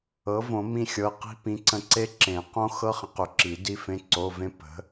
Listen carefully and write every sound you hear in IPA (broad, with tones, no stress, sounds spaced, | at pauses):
ɤ˩˥ v õ˨˩˦ m ĩ˦˨ xʲ ɤ˩˧˩ q i̤˦˥ p ĩ˩˧˩ ǀ ə̃˦˨ ǀ e˦˥ ǁ ẽ˨˩˦ q õ˦˥ x ɤ˦˥ χ ə̃˩˥ q ʏ˨˩˦ ǁ i˨˩˦ d i˦˥ f ẽ˧˥˧ ǀ o˧˥˧ v ẽ˦˥ p ə̤˩˥